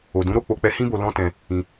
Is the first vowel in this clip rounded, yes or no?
yes